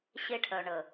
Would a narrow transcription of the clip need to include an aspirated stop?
yes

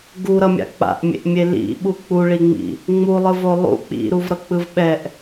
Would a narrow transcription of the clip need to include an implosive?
yes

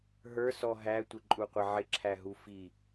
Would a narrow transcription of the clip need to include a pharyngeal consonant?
yes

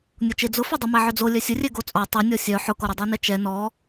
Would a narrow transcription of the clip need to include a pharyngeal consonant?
yes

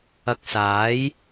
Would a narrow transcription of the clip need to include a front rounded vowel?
no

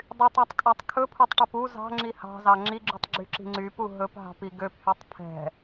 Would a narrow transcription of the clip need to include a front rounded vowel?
yes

